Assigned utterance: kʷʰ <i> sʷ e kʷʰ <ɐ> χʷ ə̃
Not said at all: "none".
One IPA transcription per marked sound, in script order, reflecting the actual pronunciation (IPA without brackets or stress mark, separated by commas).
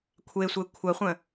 e, ɐ